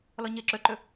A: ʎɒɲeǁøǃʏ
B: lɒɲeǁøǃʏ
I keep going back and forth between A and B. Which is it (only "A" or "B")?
B